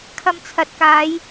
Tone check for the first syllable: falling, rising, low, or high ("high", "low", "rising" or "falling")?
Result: low